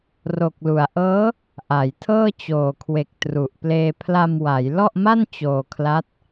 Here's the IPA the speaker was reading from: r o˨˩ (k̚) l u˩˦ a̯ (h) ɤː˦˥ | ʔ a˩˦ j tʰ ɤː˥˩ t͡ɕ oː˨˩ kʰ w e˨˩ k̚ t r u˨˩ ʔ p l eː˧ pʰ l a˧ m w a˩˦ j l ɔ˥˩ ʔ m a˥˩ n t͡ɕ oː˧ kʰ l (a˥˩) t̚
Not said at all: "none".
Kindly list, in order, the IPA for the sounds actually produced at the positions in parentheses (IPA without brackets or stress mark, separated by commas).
k̚, ʔ, a˦˥